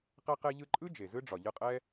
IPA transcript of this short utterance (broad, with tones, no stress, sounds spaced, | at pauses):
q ɛ˧ q e˧ ʎ ɯ˧ ǃʼ ɯ˦ d͡ʒ e˨ z ɯ˦ ɖ͡ʐ ɒ˨ ʎ ɯ˧ qʼ ɛ˦